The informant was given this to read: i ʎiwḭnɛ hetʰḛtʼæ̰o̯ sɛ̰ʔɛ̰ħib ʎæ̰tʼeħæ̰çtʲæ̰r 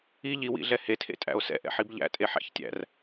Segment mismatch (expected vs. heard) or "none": n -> ɮ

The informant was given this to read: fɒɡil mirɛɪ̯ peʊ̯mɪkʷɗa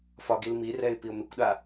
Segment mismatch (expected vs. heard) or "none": e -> i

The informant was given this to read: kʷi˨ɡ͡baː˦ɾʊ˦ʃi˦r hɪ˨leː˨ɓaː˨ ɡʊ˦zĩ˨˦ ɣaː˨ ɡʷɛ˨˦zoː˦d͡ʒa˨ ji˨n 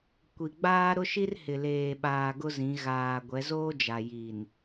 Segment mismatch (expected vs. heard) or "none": none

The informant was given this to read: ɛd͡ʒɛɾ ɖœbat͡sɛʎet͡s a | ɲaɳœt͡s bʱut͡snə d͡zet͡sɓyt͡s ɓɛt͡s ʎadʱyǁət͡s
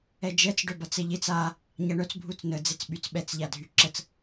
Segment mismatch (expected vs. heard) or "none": ɾ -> t͡s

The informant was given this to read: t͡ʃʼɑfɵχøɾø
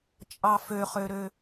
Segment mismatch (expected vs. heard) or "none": ɵ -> ø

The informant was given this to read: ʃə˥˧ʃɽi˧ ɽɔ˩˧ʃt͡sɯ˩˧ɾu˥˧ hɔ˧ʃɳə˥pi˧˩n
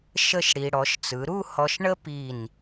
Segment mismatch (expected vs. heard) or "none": none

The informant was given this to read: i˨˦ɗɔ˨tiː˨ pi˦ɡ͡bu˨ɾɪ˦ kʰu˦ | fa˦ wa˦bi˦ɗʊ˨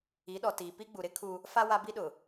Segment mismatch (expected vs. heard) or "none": none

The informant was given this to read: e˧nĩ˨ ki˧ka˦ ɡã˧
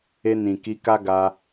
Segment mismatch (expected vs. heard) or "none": ã˧ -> a˧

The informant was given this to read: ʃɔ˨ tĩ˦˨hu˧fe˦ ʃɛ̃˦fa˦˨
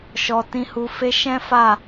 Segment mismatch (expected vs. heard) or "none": ĩ˦˨ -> ĩ˧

